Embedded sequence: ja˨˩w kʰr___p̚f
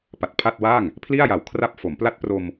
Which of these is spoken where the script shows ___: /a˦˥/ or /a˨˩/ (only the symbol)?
a˦˥